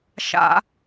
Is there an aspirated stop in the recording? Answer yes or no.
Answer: no